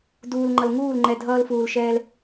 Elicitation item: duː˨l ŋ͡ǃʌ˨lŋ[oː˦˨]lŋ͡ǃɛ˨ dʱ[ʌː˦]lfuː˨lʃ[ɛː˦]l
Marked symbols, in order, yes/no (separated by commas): no, yes, yes